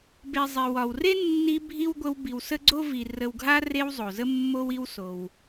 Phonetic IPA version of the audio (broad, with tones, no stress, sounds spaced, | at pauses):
b e˨ zˤ i˩ w ɒ˩ w r e˥ nː i˦ bʱ i˥ w ɡʷ ə˦ w b i˨ w s ə˥ ɡ͡ǀ o˥ v i˨ r ə˨ w ɡʱ a˦ r e˦ w zˤ o˩ z ə˥ mː o˦ w i˦ w s o˩ w